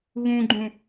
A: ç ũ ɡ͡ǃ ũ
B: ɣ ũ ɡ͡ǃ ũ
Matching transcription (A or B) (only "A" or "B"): B